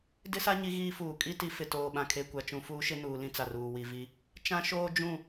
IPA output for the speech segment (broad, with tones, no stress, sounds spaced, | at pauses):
d ɪ˦ s a˦ ɲ i˦ ɣ iː˦ f uː˨ kʼ i˦ t i˨˦ f ɪ˨ t oː˨ ɓ ã˨ kʰ e˨ kʷ a˨ t͡ʃ ũ˨ f uː˦ ʃ ɪ˦ n uː˨ l ĩ˦ t͡s a˨ r uː˨ w i˨ v i˦ | t͡ʃ ã˦ ʃ oː˦ d͡ʒ ũ˦˨